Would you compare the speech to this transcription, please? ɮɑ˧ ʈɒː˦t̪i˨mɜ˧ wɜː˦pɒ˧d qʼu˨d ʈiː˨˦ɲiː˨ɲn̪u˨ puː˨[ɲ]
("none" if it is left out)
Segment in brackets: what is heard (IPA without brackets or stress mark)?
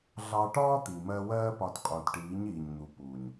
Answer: ɲ